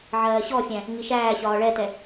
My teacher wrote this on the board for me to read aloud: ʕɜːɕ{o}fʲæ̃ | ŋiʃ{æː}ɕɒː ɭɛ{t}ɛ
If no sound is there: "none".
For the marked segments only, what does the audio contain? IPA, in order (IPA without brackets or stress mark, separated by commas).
ɔ, æː, t